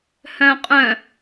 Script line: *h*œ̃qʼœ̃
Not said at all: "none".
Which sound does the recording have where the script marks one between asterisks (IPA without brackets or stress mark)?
h